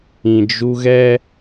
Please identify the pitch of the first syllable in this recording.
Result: low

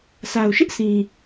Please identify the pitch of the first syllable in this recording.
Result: low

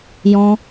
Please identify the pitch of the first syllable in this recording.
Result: high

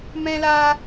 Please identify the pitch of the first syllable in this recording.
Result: high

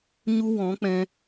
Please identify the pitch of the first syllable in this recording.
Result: high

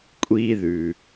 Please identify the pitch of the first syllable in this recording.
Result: high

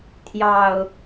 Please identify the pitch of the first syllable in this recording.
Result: low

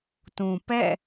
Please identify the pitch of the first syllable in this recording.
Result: low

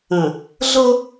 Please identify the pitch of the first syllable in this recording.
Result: low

